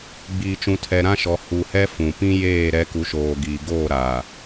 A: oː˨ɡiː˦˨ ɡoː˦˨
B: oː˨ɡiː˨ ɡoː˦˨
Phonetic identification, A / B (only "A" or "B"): B